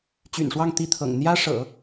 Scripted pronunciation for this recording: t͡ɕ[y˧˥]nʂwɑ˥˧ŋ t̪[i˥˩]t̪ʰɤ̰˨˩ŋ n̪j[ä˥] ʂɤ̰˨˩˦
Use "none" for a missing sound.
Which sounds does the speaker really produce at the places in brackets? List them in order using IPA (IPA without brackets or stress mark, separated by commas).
y̰˨˩, i˥˩, ä˥